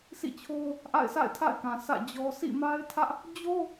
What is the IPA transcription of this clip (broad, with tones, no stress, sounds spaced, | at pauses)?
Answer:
s ḭ˦˨ t͡ɕʰ o˦ ʊ̯ | ʔ a̰˦˨ ɪ̯ s a̰˦˨ ɪ̯ tʰ a̰˦˨ ɪ̯ k ã˨ s ä̰˦˨ d͡ʑ ɔ˦ sʰ ḭ˦˨ m a˦ ɪ̯ tʰ ä˦ ʔ | d͡ʑ o˦